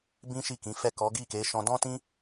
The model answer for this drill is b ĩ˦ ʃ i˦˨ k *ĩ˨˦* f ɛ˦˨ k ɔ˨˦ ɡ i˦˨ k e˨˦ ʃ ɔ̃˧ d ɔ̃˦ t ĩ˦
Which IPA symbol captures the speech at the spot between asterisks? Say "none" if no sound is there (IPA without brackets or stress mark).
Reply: ĩ˨˦